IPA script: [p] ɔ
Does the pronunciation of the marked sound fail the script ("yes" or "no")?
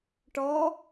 yes